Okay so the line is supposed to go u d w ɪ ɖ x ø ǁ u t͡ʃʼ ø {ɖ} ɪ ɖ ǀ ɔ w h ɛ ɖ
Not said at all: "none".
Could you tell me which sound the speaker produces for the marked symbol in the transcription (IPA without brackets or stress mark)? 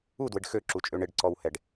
ɳ